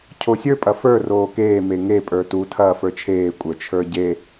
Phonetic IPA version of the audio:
cʰosʲə˞ pʼɐfə˞ roːkeː meŋe pʼə˞tu tʰɐːfə˞t͡ʃʰeː kʷʼə˞t͡ʃʰə˞ɟe

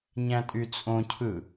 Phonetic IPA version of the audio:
ɲæ̃tʼyt͡sʼõcʰɯ

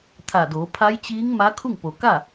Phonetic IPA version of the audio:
t̪ʰa˧˩doː˩˧ pʰa˧˥jt͡ɕiː˧˥ŋ ma˧˥kʰu˥˨ŋpo˩ ka˥˨

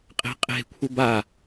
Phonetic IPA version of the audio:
qʼe̤qʼe̤kʷʰə ba

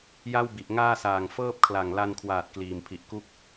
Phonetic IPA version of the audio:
ja˥˩wbi˨˩ʔŋaː˥˩saː˨˩ŋ fɤː˥˩p̚kʰla˨˩ŋ la˧nkʰwaː˨˩t̚ kliː˨˩mpʰi˨˩ʔ ku˥˩k̚

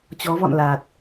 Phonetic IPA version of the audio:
t͡ɕɔ˨˦vɔ̰˧˨nla˨˩t̚

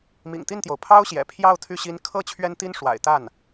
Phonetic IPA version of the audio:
mḭ˨˩ŋt̪i˥˩nt̪jo˩ʊ̯ pʰɑ˥ʊ̯ɕjɛ̰˨˩pʰjɑ˥˧ʊ̯ t̪ʰy˥˩ɕi˥n kʰɤ˥˩ t͡ɕʰɥɛ˥nt̪i˥n ʂwa̰˨˩ɪ̯t̪a˥˩n

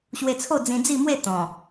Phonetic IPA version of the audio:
ɕwe˧t͡sʰo˥˧ d͡zĩ˧d͡zi˥˧mwe˥˧ t̪ɔ̃˨˩

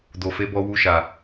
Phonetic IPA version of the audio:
do˨fe˨˦bɔ˧ wu˧ʃa˨

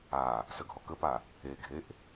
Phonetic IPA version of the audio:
a | səɡʱɔkəpa | eɡʱeʔ

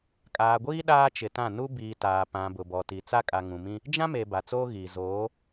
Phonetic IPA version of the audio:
kʼaː˨ɡʷiː˦ ɗaː˦t͡ʃɪ˨tã˦˨ nu˦biː˨ taː˨pã˨ bʊ˨bɔ˨ti˨ t͡sa˦kʼa˨ŋũ˨mĩ˦ | d͡ʒã˦me˨ ba˨t͡soː˦ɣiː˨ zoː˨˦

